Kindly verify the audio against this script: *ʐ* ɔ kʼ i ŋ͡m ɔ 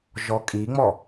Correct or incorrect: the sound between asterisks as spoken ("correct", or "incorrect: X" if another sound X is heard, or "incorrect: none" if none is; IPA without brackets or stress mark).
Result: incorrect: ʒ